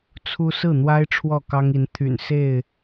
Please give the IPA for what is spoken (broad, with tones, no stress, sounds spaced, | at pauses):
t͡sʰ u˦ s ɹ̩˥˨ n̪ w a˦ ɪ̯ ʈ͡ʂʰ w ɔ˥˨ k ɑ˦ ŋ i˨˦ n t̪ʰ y̰˨˩ n s e˥˨ ɪ̯